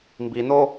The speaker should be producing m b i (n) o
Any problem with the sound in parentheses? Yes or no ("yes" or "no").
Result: no